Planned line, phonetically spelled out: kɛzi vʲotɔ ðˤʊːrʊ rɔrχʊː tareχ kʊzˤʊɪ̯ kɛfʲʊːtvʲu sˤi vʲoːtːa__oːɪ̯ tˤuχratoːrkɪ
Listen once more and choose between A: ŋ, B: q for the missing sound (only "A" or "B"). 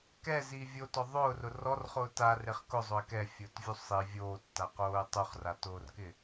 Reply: B